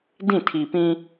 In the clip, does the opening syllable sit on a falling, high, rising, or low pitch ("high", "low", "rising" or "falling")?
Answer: falling